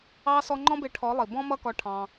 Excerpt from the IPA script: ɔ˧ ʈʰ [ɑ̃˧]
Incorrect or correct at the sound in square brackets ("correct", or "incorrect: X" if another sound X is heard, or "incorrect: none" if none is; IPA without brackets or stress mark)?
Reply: correct